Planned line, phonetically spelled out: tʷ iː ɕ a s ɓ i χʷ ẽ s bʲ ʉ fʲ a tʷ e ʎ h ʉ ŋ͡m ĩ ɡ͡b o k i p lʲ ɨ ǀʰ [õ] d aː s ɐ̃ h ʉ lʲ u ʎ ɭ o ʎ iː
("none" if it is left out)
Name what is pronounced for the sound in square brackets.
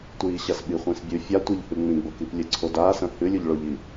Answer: o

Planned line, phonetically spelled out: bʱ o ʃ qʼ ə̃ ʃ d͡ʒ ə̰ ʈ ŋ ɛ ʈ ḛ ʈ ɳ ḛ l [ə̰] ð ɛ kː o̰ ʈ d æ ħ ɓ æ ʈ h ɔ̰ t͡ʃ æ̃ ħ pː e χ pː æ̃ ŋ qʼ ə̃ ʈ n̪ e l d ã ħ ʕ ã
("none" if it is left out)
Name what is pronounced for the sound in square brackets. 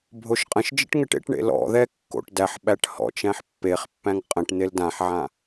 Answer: ɔ̰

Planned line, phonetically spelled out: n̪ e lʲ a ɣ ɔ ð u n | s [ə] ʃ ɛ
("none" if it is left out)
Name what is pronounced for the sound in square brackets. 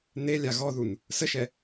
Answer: ə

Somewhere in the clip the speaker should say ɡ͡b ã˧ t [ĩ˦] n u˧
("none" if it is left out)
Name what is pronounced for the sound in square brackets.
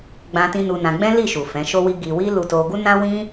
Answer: ĩ˧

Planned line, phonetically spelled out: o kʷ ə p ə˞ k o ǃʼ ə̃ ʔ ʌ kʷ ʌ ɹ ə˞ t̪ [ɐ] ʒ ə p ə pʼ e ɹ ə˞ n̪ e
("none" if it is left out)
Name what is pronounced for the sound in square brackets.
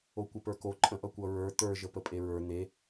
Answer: ə˞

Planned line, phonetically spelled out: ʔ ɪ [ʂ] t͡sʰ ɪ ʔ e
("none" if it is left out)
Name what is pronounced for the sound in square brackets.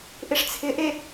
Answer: ʂ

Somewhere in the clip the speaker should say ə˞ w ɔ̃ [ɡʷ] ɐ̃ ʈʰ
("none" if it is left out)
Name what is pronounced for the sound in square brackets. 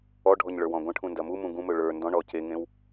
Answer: ɡʷ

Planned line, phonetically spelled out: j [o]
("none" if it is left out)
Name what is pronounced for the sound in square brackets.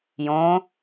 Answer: õ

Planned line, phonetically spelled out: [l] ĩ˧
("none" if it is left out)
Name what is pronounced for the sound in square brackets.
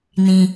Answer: n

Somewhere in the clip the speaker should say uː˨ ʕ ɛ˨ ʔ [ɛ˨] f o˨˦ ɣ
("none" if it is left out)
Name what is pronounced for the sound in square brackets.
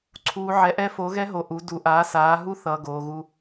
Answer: ɛ˦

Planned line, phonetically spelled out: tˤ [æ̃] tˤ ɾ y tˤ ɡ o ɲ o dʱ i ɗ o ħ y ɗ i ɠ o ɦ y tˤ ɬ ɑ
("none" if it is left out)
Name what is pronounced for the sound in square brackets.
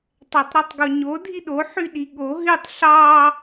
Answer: æ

